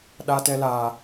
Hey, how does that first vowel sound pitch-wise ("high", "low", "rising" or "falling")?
high